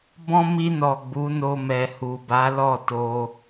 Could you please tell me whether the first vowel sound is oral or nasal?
nasal